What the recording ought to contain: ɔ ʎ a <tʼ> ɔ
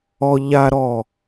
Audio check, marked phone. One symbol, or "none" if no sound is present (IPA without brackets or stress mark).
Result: ɾ